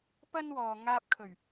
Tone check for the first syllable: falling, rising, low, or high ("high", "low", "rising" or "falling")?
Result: high